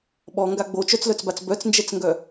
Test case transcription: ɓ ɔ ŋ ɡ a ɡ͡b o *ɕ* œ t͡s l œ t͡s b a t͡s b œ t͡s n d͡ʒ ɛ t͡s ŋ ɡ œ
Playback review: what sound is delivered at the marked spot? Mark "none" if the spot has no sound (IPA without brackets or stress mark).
t͡ʃ